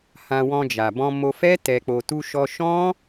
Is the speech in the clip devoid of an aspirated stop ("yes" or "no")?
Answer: yes